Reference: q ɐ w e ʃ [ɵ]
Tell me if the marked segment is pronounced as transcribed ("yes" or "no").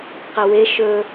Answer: yes